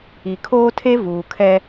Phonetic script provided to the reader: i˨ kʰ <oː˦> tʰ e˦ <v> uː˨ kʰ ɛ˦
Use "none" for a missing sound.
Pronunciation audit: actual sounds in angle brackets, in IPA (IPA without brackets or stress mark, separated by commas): oː˦, v